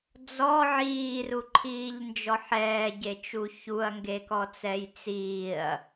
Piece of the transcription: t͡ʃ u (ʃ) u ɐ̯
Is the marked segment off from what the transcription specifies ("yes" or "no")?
yes